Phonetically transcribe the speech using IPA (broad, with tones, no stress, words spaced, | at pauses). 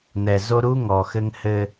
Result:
n̪ɛ˨zo˦ ɾu˦ ŋɔ˨xɘ˦ŋhɘ˦